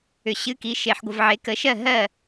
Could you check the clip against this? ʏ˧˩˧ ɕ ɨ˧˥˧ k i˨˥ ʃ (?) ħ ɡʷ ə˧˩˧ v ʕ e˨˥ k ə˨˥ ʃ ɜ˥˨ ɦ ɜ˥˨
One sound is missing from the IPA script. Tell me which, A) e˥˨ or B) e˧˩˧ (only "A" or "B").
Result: B